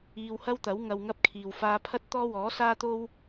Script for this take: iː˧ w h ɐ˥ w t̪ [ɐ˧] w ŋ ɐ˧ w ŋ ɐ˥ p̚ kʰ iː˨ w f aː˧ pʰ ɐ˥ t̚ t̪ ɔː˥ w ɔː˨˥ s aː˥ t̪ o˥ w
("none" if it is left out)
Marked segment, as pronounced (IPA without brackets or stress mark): ɐ˨˥